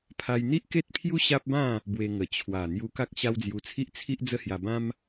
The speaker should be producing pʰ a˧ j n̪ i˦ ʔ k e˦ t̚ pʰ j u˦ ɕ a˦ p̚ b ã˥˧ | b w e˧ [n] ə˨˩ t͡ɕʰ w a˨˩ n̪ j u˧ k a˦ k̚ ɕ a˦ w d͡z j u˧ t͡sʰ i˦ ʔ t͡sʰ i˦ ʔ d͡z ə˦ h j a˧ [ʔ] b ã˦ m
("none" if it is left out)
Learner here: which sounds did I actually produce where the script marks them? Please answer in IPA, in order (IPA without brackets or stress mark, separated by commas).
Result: ŋ, none